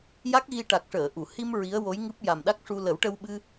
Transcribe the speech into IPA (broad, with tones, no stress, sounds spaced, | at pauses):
j a˦˥ k̚ ɣ i˧ ʈ a˨˩ k̚ ʂ əː˨˩˨ ʔ u˨˩˨ h i˧ m ɹ i˧˥ ə̯ w o˧˥ j ŋ ɨ˦˥ p̚ j a˨˩ m ɗ a˦˥ k̚ ʂ u˧ l ə˨˩˦ w ʈ ə˧ w ɓ ɨ˧